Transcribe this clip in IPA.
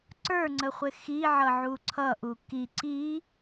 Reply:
ǀə˞ŋ͡ǀəχʷɪ xiʕʌʕu ǀʰʌʔu ki ǀi

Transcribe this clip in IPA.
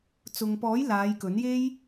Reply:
t͡sʊ˨ŋpɔː˨˥j laː˨˧jkɵ˨˥nje˥j

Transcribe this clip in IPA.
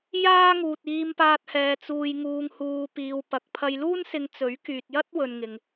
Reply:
jaː˥ŋuː˨t̚ iː˧mpaː˧t̚hɛː˨ t͡suː˨jŋuː˨ŋ huː˧piː˧wpɐ˧k̚ pʰɐ˧jluː˥nsɪ˧ŋ t͡sɵ˨˥ɥkyː˨t̚jɐ˥t̚ wɵ˨nŋɪ˨ŋ

